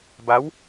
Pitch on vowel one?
rising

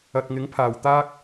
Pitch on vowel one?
low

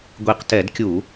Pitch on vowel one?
low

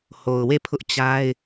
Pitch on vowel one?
low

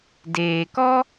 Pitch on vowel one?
low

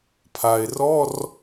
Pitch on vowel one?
low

